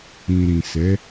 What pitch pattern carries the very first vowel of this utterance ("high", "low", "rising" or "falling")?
low